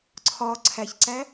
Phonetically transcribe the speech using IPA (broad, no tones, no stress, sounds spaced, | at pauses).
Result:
ǀʰ ɒ ǀʰ æ ç ǀ æ